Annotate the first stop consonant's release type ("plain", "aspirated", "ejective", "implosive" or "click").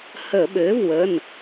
implosive